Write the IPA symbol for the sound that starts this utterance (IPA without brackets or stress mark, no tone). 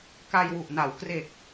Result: k